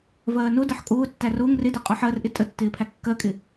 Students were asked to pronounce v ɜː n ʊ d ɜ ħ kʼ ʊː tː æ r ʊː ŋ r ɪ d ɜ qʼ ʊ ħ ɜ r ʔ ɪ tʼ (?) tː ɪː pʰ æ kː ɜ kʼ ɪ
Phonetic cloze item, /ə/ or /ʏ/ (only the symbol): ə